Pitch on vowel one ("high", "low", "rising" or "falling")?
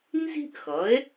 high